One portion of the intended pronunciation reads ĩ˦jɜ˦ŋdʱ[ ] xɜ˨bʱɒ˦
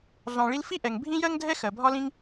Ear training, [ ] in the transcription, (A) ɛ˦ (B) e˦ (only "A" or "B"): A